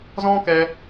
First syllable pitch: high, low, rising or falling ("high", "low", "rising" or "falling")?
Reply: high